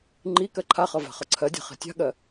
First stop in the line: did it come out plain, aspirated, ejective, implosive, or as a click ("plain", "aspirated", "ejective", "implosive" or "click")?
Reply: click